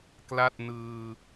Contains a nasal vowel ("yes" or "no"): no